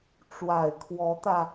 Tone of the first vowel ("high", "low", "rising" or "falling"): low